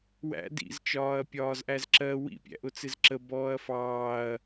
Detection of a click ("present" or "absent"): present